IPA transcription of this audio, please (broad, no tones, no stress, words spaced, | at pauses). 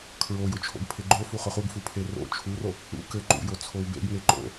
kʰɹojʊt͡ʃʰo̰ɡ pʰeɡ͡ǃo fuχʊχuɡfu pʰero̰ t͡ʃʰuro | ṵ kɘ ǃṵjot͡sʰow bḛɡŋe ǃo̰